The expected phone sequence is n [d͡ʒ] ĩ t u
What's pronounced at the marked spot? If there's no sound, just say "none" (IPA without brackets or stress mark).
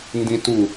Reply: d